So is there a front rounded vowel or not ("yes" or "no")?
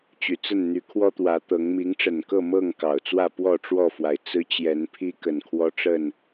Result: yes